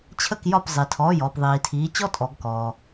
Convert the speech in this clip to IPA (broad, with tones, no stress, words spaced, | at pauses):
t͡ɕʰə˧˩kjɒ˧˩p zˤi˩ tʰɔː˩˧˩jɔː˩pðˤiː˩tʰiː˩˧ t͡ɕɔ˦ tʼɔ˩˧ɡkɔː˩